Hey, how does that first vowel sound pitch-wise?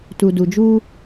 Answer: low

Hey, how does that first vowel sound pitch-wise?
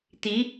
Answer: rising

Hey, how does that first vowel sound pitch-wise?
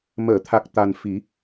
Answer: low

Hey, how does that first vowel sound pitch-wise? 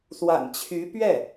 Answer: low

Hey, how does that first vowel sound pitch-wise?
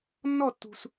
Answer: falling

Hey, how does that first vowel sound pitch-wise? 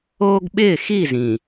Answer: high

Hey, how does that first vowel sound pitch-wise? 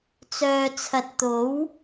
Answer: low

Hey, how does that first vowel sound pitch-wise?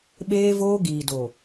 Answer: high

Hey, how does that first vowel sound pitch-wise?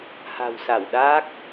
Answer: low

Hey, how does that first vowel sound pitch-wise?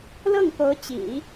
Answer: falling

